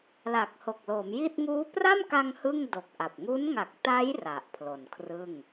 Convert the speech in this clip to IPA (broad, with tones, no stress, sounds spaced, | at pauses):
l a˨˩ k̚ h o˨˩ k̚ l o˩˦ m j i˥˩ t̚ ŋ uː˦˥ p r a˥˩ m k a˧ ŋ h ɯ˥˩ ŋ d o˨˩ k̚ ʔ a˨˩ p̚ ŋ u˦˥ n ŋ a˨˩ k̚ t a˦˥ j r a˨˩ ʔ pʰ l o˨˩ n kʰ r ɯ˥˩ ŋ